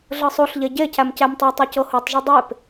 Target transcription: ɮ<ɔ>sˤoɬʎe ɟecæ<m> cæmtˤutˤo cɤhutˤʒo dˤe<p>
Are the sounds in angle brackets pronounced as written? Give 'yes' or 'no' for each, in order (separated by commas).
no, yes, yes